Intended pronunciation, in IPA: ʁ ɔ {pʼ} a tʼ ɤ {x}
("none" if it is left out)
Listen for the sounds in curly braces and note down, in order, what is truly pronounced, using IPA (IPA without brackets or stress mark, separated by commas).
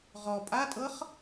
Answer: pʼ, χ